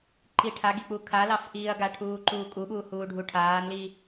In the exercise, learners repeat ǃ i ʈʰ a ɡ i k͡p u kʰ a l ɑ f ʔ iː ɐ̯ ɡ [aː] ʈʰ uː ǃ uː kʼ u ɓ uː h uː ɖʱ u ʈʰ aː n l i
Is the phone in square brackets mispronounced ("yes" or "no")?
yes